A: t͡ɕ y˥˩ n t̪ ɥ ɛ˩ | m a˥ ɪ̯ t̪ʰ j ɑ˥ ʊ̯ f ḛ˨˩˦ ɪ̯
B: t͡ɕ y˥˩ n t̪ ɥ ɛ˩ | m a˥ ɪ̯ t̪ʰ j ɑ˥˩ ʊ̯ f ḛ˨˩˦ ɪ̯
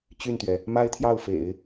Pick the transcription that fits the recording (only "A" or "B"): B